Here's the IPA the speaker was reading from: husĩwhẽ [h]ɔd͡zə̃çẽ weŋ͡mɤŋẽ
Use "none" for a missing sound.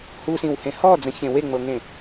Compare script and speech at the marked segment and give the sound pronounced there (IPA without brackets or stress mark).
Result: h